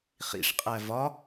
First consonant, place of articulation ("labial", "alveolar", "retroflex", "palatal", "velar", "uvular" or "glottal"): uvular